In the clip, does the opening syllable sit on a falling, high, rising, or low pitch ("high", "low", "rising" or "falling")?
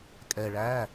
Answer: low